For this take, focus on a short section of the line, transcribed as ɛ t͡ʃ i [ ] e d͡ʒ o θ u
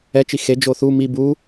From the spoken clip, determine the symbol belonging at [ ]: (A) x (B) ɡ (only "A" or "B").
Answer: A